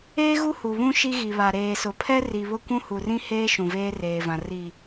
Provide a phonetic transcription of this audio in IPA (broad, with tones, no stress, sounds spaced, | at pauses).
eː˦ ɣ u˦ h u˨ β ũ˦ ʃ i˦ ɣ i˨ β a˨ ɾ eː˨ s ʊ˨ pʰ ɛ˦ r i˨ β ʊ˦ kʷ ũ˦ h u˨ r ĩ˦ h eː˦ ʃ ũ˨ v eː˦ r eː˨ v ã˨ r i˨